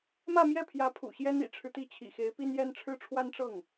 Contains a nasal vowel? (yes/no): no